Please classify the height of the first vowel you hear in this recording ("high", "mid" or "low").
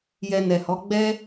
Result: mid